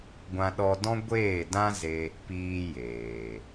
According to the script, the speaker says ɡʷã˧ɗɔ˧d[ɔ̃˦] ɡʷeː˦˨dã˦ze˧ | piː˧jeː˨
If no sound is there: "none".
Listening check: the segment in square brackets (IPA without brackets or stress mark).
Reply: ɔ̃˦